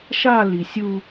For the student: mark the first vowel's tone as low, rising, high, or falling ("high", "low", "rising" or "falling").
falling